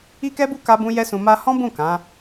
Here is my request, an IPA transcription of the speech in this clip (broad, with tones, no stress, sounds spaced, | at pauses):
i˦ k ɛ˦ b u˦ k a˦ b ũ˦ j ɛ˦ s ũ˧ m a˧ h ɔ̃˦ b ũ˦˨ k ã˨˦